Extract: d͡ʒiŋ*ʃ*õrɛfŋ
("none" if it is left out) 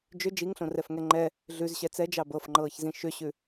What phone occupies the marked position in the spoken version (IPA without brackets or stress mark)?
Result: ɬ